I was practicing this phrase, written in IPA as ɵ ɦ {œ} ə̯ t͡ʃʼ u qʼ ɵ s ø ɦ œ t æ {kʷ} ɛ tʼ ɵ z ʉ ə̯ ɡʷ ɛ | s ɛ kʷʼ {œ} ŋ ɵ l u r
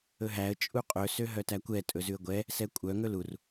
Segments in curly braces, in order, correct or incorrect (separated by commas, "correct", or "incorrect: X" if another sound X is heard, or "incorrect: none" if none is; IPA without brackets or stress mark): incorrect: æ, correct, correct